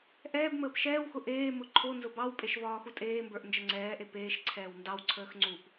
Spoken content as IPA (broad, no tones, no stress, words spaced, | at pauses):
ʔɛːbməːp ʃɛːwxʊ ʔeːmʊ ǃʰo nzʊbɑwpʼeʃ vɒːxutʼeːmbə˞ʔ nd͡ʒəŋ͡ǀɛːʔe peːʃǀʰɛːw ndɑwǀʰəːx ŋ͡ǀup